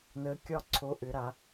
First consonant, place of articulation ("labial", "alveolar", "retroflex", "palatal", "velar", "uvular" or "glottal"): alveolar